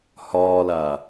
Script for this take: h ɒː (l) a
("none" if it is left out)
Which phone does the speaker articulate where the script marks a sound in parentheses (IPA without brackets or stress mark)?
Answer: l